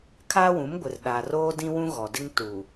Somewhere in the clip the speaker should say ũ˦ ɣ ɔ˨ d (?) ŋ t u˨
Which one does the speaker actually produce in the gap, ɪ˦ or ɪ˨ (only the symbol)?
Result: ɪ˦